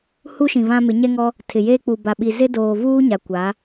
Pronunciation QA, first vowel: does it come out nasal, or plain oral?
oral